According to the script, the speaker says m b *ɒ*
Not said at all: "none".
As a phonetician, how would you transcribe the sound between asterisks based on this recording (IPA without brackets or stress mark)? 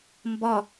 ɒ